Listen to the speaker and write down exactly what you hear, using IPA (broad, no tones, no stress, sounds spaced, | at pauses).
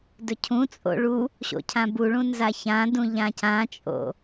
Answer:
d ɵ cʰ ũ t͡sʼ o̰ ɭ u | ɕ o̰ cʰ ã b u ɭ ũ n z a ç ã d ũ ʎ ã c ã t͡ʃʼ o̰